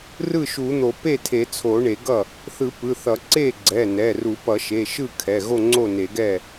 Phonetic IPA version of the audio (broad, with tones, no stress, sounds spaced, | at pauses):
r ɯ˥˩ ʃ u˨˩˦ n̪ o˨˩˦ p e˥˩ tʰ e˨˩˦ t͡sʰ o˨˩˦ ɳ e˨˩˦ ɡ ʌ˥˩ | θ ɯ˨˩˦ p ɯ˩˧˩ θ ʌ˨˩˦ ǀ e˥˩ ɡ͡ǀ ɛ˩˧˩ n ɛ˩˧˩ r u˨˩˦ p ʌ˨˩˦ ʃ e˩˧˩ ʃ ɯ˥˩ kʰ ɛ˩˧˩ ɣ o˥˩ ŋ͡ǀ o˥˩ n e˨˩˦ ɡ ɛ˥˩